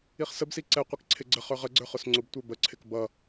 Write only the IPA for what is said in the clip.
i χ s ə b s i ǀ ɛ qʷ i k ǀʰ ɪ ɡ͡ǀ ə χ ə˞ ʁ ə ɡ͡ǀ ə˞ χ ʊ s ŋ͡ǀ ʊ b tʷ ə˞ b ə ǀʰ ɪ k b ʌ

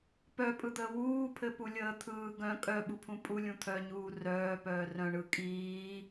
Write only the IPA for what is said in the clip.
p œ pʼ ɯ d̪ əː w uː pʰ ɘ p u lʲ əː t̪ʰ ɯː ɡ œ̃ kʼ œ ɓ u pʰ ũ pʼ u lʲ ũ t̪ʰ œ ɲ uː r œː p œː r œ̃ ɳ ɯ kʼ iː

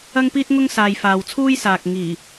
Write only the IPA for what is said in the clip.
ɐ˥ ŋ p iː˥ t̚ ŋ ʊ˥ ŋ s aː˨ j f aː˨ w t͡sʰ uː˥ j s aː˨ k̚ ŋ iː˨˩

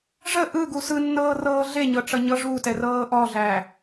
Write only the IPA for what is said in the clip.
ʐ ə ʔ ɯ ɡ u s ɯ nː ɤː r ɤː ɮ e ɲ ɤ ʈ͡ʂ ʌ ɲ ɤ ʐ u t ɛ r ɤː ʔ ɔ ɮ æ

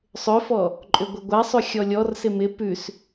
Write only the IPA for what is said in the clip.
sˤ ʏ f ɔ | ǃʼ ʏ ɡʷ ə ɡʷ a sˤ ʉ xʲ ɔ lʲ ɔ r s ɪ m ɪ p ʉ s

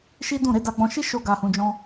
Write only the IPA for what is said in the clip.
ʃ i˦ d ũ˦˨ ɾ e˨˦ d a˧ ɡ͡b ɔ̃˧ ʃ i˦ ʃ o˦ ɡ a˧ h ũ˧ d͡ʒ ɔ̃˦

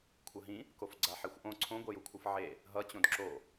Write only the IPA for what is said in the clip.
kʷʰ ʌ ɦ ĩ | k o f ɡ͡ǀ a ħ e xʷ ʔ õ ǀʰ õ ɡʷ ɛ j u kʷʰ ɯ f ʕ e | ɦ ʌ t͡ɕ õ d ǁ o

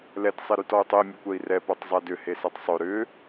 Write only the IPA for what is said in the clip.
l ɛ t sˤ e ɾ y t ɔ u̯ tˤ ʊ i̯ mʲ ʊ kʷ ɛ i̯ r ɛ p o tˤ zˤ ɛ d ʏ h e s ɛ tˤ sˤ ø ɾ ʏ

